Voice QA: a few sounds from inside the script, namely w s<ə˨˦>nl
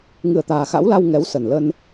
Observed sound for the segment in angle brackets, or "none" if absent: ə˨˩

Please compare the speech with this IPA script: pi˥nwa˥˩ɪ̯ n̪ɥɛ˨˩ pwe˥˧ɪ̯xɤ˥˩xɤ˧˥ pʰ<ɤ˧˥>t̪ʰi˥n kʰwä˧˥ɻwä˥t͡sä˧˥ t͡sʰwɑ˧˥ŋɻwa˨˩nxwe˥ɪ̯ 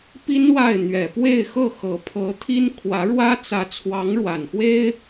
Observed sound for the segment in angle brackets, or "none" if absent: ɤ˧˥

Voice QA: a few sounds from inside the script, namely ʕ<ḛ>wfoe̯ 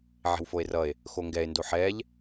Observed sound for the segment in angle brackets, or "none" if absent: e̤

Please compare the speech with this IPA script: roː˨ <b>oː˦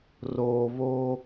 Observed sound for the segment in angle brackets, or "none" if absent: β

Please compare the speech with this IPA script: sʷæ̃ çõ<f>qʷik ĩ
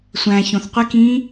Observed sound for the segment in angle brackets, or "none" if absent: θ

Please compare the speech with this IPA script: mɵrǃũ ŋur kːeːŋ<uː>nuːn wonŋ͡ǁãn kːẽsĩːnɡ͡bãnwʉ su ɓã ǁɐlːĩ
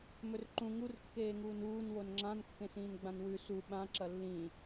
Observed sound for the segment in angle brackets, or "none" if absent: uː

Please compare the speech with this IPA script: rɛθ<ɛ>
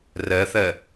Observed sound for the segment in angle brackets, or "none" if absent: ɛ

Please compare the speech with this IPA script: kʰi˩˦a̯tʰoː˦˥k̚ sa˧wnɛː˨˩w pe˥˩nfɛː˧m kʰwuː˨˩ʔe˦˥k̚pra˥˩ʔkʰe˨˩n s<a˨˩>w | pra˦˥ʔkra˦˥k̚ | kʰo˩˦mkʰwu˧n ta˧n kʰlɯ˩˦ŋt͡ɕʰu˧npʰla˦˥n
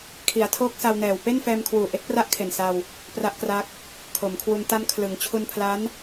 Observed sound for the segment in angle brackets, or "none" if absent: a˧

